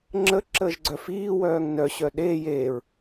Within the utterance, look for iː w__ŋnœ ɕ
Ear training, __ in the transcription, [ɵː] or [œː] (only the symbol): œː